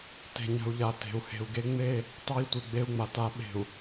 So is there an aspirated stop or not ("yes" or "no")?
no